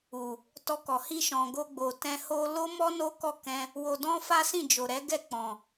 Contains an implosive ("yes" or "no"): no